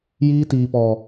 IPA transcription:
j iː˧ t iː˨ p ɔ˨

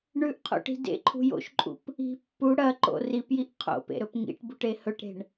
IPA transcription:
ɳ ʉ ʔ qʰ o̰ ʈ i̤ d ḛ ǃʰ ṳ j o̰ ʃ ǃʼ ṵ p | i̤ pː u ɽ ɐ ǃ o̰ r i p j i ʔ qʰ o̰ p ḛ ɾ ɵ p ŋ ḭ ʈ b u ʈ e h ɵ ʈ ɾ e̤ ɳ

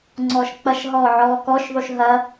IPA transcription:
ŋ͡ǀ ɔː ʃ k͡p ɐ ʃ ɦ ɔː ʕ ɔː k ɔ ʃ ðˤ u ʃ ɦ ɐ

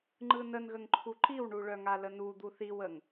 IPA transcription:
ŋ͡ǃ ɯ n ə n ɣ ə ŋ ǃʰ u ǃ i w ɳ u ɭ œ ŋ a l ə n u d̪ u θ i w ə ŋ

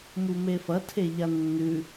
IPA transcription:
m u m e f ɐ tʰ e ʎ a nː ʉ

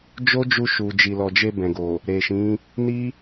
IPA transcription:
d͡ʒ o˦ d͡ʒ u˧ ʃ u˨ d͡ʒ i˨ l ɔ˨ d͡ʒ e˧ b ɛ̃˨ ɡ o˨ | ɾ e˨ ʃ ĩ˨˦ | n i˦

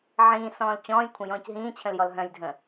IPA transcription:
ʕ ĩː s ɔ̃ː l t͡ɕ ɔ̃ː j kʷʰ ə̃ j ɔ̃ː c ɦ ĩː t͡ɕʰ ə̃ l j ɔ l ɦ œ̃ j dʱ ə̃

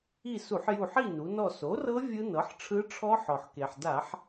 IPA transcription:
i˦˨ s u˧˩˧ ħ j u˦˨ ħ i˦˨ n u˩˧ n ɔ˦˨ s o˩˥ r ɤ˦˥ vʲ ɯ˦˥ n ɤ˩˥ ħ ʈ͡ʂʰ ɯ˦˥ ʈ͡ʂʰ ɔ˦˥ ħ ɔ˩ ħ k e˩ ħ d a˧˩˧ ħ

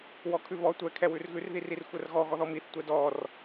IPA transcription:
w ɔ kʰ ʉ β ɔ tʷ ɛ kʰ ɛ w ʉ r ɣ ʉ r ð i r i r xʷ ɛ r ɣ ɔ ɣ ɔ ð ɔ m i θ tʷ ɛ d ɔ r

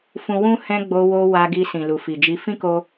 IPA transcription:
f ũ˦ w ũ˦ h ɛ̃˧ ɡ͡b o˧ w o˧ w a˧ ɡ i˧ s ĩ˨ l u˨ f i˨ d͡ʒ i˧ f ĩ˦ k o˧

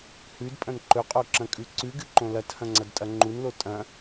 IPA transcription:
h ʉ d pʼ ɐ̃ n ǃ ɵ qʼ o ǁ ɐ̃ kʼ ʉ ǀ ʉ ɡ ɨ ǃ õ l ɐ t h ɐ̃ ŋ͡ǀ ɐ d tʼ ɐ ŋ͡ǃ u n l o tʼ ɐ̃

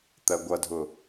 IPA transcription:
t̪ ɜ ɡʷ ʌ dʱ ʊ

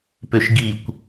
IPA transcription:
p ø ʃ ɡ i kʷ

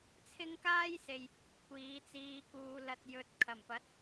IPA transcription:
t͡sʰ ɪ˥ ŋ k aː˥ j s e˨ j | kʷ iː˨˥ t͡s iː˧ k uː˧ l ɐ˧ t̚ j ɵ˨˥ t̚ kʰ ɐ˨˩ m p ɐ˨˥ t̚

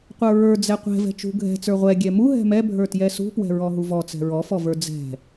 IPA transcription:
qʷ ə˞ ɹ ə˞ d͡z ɛ qʷ ɛ̤ v ɛ̤ t͡ʃ ṳ ɡʱ ɛ̤ t͡s ə˞ ʁʷ ɛ ɡʲ ɛ m u ɦ ɛ̤ m ɛ bʱ ə˞ t j ɛ s ṳ p w ɛ̤ ɹ ɔ ɦ u v ɔ t͡s ɛ̤ ɹ ɔ f ɔ v ə˞ d͡z ɛ̤

